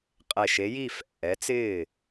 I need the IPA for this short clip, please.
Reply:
qʼɛ˧˩ʃe˨˥ji˥˩ fɛ̰˧˩ʔɛ˨˥t͡sɪː˥˩

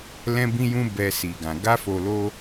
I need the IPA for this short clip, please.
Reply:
lɛ̃˧bĩ˧jũ˧ bɛ˧si˨ɡã˨ ɡa˧fo˨lo˧

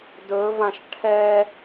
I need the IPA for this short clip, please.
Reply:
dɵvãʃ ʈʰɛ

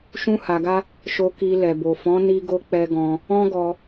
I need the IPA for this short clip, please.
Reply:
ʃũ˦ha˧ɡa˦ | ʃo˧ki˧ lɛ˨bo˨fɔ̃˨˦ ni˧ɡo˧ k͡pɛ˧ɡɔ̃˧ | ɔ̃˦ɡɔ˧

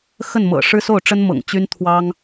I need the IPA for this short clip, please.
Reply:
xə˥˩nmɤ̰˨˩ ʂɻ̩˥so˥˩ʊ̯ ʈ͡ʂə˥nmɤ̰˨˩ŋ t͡ɕy˥n t̪ʰwɑ˥ŋ

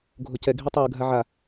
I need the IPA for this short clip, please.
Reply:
ɡʱocɛ ɡʱitˤɯ ɡʱaʕa

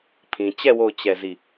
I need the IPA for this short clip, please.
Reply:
pʰĩ˨ t͡ɕɛ˦˨ wo˦˨ʊ̯ t͡ɕɛ˦˨zi˦˨

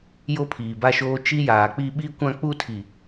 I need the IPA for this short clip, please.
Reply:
jo˦pʰiː˨ba˦ʃoː˦ t͡ʃi˦jaː˨k͡pi˦ ɓi˦kʷã˦k͡pu˦ tʰi˨

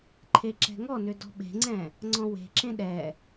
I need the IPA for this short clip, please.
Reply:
ǃʰeǁɛ̤ŋɔnʏ dɔ̤ɓe̤ŋ͡ǀɛ̃ | ŋ͡ǀɔ̃we̤ǁẽ ɗɛ

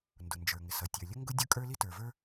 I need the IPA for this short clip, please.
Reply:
ndʊ˩nd͡ʒə˞˩ŋɪ˩sʌ˩ tʲə˞˩lʲə˥ŋɡʊ˥ dʲʊ˥kʼə˞˥ li˥tə˞˩və˞˥

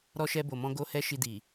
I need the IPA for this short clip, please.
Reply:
ɾɔ˧ʃɛ˧bo˨mɔ̃˧ ɡo˧hɛ˧ ʃi˧di˨

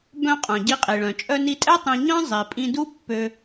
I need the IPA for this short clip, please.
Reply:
bœ̃˧ qʼœ̃˩ɟi˧qʼi˩ɭœ̃˩ t͡ʃʼœ˧ni˧tʼɛ˥ tˤĩ˧ ɲœ̃˥ zˤi˩pʼĩ˧du˥ pːø˧

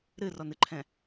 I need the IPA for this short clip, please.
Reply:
ɾɨrɔnɨǃʰɛ̃

